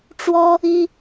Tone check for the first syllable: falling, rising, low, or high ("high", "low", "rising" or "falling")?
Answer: high